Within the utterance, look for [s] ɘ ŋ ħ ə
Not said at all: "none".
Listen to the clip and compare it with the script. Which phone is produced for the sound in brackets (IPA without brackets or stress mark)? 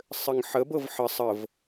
sˤ